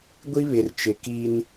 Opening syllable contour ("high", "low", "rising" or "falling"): high